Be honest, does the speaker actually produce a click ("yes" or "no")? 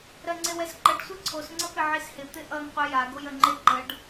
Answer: yes